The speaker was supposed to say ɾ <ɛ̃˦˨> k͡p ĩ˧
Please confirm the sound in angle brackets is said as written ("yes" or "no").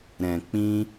no